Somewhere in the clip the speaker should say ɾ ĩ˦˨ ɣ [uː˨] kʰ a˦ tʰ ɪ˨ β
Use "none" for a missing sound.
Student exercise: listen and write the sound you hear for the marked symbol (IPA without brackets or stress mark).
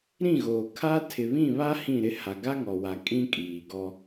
oː˨